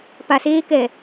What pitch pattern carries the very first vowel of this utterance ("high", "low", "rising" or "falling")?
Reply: low